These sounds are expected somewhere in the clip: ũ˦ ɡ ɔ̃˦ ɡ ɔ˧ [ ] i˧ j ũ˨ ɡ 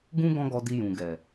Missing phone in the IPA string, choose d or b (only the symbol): d